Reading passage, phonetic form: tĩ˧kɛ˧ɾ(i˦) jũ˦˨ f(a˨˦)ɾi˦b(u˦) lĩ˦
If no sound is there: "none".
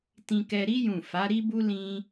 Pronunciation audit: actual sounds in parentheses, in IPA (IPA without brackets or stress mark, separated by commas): i˦, a˨˦, u˦